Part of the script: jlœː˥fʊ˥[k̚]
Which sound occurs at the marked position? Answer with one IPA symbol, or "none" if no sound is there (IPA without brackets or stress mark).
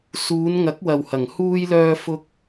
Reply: k̚